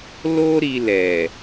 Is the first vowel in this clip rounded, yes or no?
yes